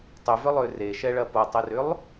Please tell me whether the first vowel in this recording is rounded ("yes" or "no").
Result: yes